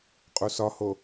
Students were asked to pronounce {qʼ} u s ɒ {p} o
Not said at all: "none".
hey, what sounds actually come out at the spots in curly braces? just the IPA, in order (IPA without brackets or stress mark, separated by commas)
qʼ, h